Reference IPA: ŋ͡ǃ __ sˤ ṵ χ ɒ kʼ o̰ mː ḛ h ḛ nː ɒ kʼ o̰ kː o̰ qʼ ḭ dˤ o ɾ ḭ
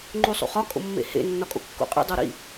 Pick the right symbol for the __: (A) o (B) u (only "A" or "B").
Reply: B